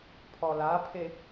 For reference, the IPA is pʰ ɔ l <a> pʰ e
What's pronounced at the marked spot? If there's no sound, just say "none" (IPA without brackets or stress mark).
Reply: a